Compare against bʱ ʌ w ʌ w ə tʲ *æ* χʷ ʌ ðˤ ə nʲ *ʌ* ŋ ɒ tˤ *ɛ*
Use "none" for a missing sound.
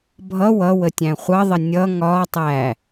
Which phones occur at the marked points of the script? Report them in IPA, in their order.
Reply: æ̃, ʌ, æ

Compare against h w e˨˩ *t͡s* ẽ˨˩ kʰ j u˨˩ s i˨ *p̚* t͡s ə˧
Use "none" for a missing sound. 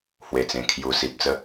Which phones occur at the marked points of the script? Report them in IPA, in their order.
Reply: t͡s, p̚

